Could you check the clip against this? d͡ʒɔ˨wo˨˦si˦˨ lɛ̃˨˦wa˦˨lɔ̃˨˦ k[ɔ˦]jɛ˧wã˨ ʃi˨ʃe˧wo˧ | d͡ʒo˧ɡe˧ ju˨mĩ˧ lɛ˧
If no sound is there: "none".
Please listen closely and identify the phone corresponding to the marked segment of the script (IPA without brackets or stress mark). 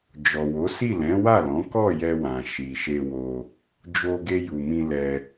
ɔ˦˨